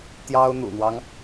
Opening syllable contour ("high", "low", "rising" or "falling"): high